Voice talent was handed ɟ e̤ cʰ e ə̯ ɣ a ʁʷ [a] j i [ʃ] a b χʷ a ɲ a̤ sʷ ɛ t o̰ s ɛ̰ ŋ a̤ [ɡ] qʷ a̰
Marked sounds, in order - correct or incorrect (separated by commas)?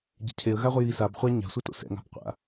incorrect, incorrect, incorrect